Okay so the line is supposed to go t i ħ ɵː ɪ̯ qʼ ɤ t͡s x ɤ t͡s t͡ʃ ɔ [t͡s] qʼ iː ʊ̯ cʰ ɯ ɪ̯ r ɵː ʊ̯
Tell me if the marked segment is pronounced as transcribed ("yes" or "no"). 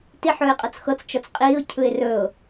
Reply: yes